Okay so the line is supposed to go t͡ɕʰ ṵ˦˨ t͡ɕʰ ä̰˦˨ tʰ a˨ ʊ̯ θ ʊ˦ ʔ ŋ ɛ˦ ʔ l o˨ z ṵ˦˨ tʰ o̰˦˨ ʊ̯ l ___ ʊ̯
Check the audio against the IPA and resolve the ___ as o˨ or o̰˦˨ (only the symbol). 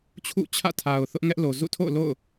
o̰˦˨